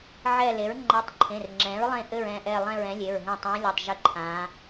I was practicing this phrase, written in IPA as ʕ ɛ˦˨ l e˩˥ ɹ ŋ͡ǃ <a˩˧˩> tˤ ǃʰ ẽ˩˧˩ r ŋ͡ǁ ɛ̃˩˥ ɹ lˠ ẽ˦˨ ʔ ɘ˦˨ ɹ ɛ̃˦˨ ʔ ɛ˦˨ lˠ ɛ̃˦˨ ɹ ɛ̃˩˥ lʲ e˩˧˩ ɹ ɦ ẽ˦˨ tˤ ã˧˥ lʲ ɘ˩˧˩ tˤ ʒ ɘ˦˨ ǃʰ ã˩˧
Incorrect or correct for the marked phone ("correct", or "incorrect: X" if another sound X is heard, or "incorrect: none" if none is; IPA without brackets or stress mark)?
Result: incorrect: a˧˥